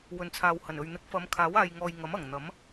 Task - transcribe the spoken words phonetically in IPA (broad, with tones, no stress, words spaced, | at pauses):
wɵ˨nt͡sʰaː˨whɐ˨˩nɵ˨ɥ n̪ɪ˨˥k̚fɐ˨˧m kʰaː˨˥waː˨j ŋɔː˨j ŋɐ˨˥mɐ˨˩ŋ n̪ɐ˨˥m